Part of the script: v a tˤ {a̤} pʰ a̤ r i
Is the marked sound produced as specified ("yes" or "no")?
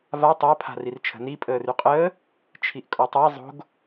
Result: no